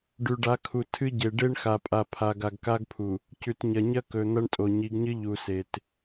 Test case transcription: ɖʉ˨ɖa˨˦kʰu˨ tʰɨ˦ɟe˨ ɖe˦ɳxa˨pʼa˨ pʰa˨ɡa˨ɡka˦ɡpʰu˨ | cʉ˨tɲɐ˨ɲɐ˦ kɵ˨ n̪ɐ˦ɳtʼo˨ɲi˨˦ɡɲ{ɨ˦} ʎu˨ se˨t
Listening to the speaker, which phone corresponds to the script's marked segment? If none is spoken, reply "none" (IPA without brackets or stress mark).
ɨ˦